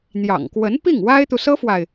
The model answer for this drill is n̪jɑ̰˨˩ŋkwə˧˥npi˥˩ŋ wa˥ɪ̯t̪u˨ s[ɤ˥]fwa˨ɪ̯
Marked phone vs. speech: correct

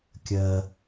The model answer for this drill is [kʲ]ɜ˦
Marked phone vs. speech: correct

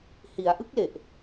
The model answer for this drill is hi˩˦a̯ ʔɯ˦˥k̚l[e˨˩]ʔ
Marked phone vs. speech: correct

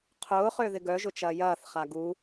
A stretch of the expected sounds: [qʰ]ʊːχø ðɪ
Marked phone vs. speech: correct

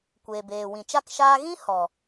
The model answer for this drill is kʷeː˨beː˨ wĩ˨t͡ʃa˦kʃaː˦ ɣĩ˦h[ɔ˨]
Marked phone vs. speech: correct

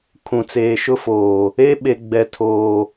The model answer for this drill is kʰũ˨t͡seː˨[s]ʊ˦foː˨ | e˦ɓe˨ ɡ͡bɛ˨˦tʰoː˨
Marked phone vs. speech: incorrect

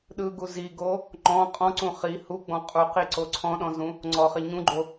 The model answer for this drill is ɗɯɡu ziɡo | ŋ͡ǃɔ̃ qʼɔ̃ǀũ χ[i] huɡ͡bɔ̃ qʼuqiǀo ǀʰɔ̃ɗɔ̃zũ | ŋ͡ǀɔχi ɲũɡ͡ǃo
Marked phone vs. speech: correct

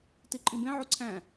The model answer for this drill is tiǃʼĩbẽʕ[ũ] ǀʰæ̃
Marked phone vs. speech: incorrect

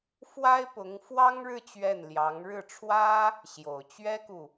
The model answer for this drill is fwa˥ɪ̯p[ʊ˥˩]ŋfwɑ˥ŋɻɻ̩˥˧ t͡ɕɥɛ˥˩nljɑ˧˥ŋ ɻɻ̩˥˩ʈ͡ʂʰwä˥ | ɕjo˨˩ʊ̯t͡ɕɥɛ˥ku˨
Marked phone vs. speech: incorrect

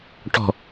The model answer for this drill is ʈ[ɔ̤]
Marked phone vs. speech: correct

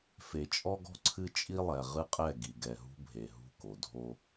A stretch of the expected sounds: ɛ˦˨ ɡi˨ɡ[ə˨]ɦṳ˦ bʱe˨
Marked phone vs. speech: incorrect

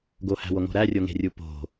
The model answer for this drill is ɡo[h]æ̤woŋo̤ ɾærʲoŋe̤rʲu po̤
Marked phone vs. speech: correct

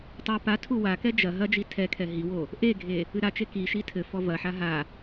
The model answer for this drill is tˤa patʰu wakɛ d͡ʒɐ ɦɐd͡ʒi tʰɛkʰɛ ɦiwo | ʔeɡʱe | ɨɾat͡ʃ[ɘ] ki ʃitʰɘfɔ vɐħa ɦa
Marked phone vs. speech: incorrect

